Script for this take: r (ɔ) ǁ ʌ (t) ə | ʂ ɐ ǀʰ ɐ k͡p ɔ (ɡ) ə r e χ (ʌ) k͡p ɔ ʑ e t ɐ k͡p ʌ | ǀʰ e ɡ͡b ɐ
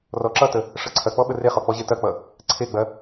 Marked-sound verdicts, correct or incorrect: correct, correct, incorrect: ɓ, incorrect: ɔ

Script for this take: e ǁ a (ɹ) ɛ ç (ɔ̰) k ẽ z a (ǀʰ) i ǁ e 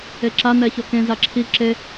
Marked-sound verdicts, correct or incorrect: incorrect: n, incorrect: ɔ, incorrect: ǁʰ

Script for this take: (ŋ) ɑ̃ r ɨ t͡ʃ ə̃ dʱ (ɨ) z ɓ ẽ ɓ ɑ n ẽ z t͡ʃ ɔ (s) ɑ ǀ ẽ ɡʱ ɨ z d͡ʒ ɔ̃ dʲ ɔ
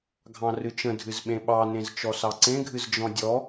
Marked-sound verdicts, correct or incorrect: incorrect: ɡʱ, correct, correct

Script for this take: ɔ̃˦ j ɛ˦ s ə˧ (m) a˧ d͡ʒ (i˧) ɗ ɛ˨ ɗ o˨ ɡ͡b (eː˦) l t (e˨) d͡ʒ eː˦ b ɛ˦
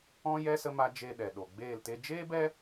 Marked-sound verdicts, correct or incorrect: correct, incorrect: e˧, incorrect: eː˦˨, incorrect: e˦

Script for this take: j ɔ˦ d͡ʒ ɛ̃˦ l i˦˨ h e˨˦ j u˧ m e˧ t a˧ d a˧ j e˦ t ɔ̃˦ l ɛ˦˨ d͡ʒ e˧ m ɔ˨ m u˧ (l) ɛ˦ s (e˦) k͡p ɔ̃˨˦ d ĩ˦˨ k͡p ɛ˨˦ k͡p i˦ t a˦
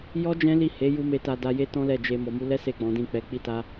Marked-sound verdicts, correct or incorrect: correct, incorrect: e˦˨

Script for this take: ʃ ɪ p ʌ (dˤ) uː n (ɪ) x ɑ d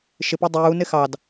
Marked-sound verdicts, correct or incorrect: correct, correct

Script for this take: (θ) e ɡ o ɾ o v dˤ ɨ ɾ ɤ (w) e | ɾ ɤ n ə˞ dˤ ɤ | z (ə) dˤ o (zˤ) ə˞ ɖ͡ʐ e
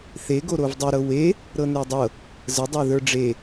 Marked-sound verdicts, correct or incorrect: correct, correct, correct, incorrect: ð

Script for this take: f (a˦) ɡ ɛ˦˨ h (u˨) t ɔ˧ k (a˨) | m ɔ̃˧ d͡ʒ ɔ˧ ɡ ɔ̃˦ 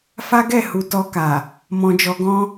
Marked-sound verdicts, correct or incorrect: correct, correct, correct

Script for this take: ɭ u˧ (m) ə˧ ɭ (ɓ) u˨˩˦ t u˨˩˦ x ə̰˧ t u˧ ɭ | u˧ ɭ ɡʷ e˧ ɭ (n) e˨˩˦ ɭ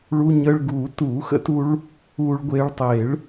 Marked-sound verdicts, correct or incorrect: incorrect: ɲ, incorrect: ɡ, incorrect: tˤ

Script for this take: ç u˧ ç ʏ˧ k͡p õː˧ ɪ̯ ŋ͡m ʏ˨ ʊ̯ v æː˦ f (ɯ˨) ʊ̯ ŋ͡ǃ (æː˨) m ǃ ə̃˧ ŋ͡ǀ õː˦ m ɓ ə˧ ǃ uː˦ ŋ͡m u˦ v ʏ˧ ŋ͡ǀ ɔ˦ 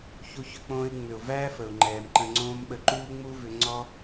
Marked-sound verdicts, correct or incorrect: incorrect: ə˨, incorrect: ɛː˨

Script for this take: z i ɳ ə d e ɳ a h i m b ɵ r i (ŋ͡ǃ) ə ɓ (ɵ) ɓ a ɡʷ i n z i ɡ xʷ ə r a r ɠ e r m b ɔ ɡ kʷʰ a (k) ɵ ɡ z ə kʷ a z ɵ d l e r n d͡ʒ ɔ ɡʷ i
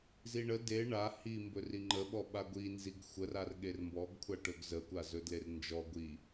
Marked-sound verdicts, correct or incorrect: correct, incorrect: ɔ, incorrect: ʈ

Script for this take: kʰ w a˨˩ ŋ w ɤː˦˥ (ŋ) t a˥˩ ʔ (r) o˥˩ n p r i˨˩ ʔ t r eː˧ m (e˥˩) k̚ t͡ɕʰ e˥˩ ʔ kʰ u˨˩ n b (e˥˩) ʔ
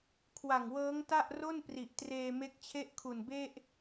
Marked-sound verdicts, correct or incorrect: correct, correct, incorrect: e˦˥, correct

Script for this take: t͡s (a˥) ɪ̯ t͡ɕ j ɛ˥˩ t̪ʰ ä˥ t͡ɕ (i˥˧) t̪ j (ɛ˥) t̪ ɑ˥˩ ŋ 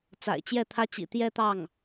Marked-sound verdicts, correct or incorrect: incorrect: a̰˨˩, incorrect: ḭ˨˩, incorrect: ɛ˥˧

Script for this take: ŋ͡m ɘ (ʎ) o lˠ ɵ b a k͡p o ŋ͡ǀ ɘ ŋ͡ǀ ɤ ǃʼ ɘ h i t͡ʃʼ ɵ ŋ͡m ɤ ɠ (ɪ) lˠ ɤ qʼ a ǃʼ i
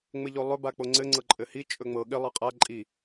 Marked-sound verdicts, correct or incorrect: correct, correct

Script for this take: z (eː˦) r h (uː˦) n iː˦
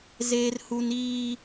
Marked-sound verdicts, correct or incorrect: correct, incorrect: u˦

